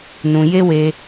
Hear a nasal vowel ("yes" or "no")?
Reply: yes